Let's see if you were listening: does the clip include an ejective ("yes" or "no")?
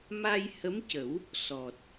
no